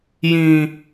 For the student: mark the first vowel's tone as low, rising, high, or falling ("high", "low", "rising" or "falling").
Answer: low